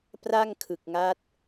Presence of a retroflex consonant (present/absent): absent